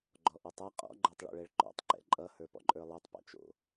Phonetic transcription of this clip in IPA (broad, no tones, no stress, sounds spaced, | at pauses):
ɡ͡ǃ ɔ ʔ ɨ tˤ ɜ qʼ ɔ̰ ɡ͡ǃ ə˞ tˤ ɭ o̰ ɭ ɛ ɭ ǃ ɔ̰ tˤ ǃ ɛ̰ ǃʼ ʌ h ə˞ p ɔ̰ ǃʼ ə˞ lˠ ɛ tˤ p ɔ̰ t͡ʃ o̰